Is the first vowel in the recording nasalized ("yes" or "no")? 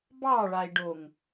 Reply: no